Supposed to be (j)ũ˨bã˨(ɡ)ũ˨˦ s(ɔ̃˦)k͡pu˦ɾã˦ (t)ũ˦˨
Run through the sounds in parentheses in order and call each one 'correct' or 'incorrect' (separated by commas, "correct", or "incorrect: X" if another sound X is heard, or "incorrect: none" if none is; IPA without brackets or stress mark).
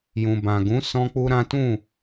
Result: correct, correct, correct, correct